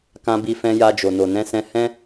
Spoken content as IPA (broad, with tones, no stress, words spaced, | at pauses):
kã˧bi˧ fɛ̃˧ja˧d͡ʒo˨ no˨nɛ̃˧sɛ̃˧hɛ̃˦